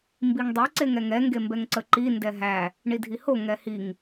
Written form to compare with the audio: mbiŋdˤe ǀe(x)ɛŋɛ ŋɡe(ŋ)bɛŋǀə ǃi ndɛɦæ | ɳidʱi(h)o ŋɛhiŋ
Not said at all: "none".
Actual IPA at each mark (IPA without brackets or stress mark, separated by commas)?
ŋ, m, h